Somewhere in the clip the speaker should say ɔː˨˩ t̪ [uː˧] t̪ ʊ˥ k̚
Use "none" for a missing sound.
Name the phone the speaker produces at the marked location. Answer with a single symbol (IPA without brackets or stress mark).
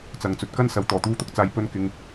uː˧